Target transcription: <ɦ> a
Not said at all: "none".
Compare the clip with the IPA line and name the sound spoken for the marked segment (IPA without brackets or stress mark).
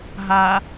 ɦ